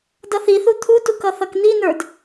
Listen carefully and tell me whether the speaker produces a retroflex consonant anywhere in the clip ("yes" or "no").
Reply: no